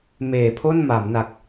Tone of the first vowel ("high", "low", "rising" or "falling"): low